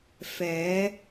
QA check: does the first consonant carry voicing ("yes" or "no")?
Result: no